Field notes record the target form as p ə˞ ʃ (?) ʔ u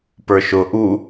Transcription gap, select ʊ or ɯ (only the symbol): ʊ